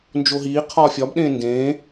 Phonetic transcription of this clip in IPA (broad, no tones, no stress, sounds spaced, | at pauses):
n d͡ʒ o ɦ iː qʰ ɒː fʲ ɒ b ɗ ẽː n d ẽː